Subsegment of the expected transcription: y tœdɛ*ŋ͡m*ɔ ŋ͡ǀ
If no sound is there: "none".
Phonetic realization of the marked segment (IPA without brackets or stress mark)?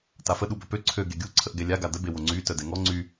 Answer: ŋ